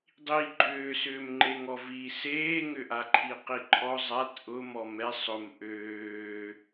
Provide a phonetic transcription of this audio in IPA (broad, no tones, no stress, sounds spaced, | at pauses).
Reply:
dˤ i ɡ͡ǃ ʏː s ʏː m ŋ͡ǃ e ŋ ɔ v i s eː ŋ ʏ ʔ a ǃʰ i q i ǃʰ ɔ zˤ a t ʔ ʊ m ɔ m ɛ sˤ ʊ m ʔ øː